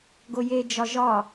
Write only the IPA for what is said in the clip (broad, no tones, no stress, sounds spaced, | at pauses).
ɡ o j e d͡ʒ ɒ ʒ ɒ